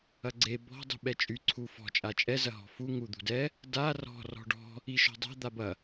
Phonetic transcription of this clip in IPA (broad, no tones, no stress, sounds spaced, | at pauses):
ɐ ɡ͡ǀ e b ɔ̤ dˤ ṳ ɓ ɛ t͡ʃʼ y ǀʰ u f ɔ̤ t͡ʃʼ a t͡ʃʼ ɛ z ɐ ɦ ɔ̤ f u ŋ u d̪ ṳ d ɛ | d a r ɔ̤ r ɔ̤ ɖ ɔ̤ | i ʃ ɔ̤ dˤ a̤ d̪ a b ɐ